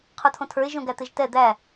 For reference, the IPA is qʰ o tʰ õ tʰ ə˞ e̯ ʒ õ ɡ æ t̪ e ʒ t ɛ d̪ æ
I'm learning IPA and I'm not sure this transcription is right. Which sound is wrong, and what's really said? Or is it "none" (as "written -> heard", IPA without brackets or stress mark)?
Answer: none